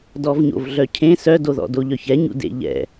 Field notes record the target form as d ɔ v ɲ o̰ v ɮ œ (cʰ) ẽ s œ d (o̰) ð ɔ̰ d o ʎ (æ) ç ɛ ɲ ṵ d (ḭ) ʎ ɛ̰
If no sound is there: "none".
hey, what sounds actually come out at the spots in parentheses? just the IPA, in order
cʰ, o, œ, ḛ

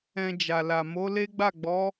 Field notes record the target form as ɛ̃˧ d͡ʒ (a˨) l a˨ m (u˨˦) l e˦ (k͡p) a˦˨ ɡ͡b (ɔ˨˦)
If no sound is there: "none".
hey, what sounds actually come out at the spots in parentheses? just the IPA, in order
a˨, o˨˦, ɡ͡b, ɔ˨˦

